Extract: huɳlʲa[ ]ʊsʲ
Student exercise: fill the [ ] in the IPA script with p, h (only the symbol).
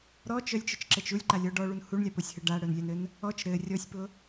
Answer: p